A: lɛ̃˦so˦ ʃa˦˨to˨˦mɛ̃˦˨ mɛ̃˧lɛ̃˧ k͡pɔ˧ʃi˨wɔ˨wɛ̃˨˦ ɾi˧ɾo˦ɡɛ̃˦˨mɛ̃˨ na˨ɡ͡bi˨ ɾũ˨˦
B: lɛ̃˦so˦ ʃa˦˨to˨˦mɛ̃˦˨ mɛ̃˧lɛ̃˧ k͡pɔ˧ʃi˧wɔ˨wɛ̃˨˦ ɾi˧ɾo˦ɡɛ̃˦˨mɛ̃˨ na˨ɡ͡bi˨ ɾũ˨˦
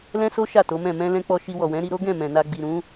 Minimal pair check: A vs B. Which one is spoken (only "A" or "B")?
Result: B